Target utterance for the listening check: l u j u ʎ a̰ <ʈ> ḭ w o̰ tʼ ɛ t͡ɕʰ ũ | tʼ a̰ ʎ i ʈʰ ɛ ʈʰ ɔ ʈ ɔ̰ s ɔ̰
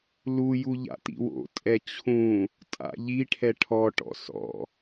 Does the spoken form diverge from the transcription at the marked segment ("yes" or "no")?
yes